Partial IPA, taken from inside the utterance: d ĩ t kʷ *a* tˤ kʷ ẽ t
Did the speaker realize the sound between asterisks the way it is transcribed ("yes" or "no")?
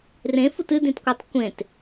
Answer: yes